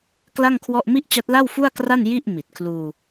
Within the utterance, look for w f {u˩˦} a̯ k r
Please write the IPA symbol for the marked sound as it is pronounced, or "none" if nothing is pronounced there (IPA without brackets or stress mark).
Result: u˥˩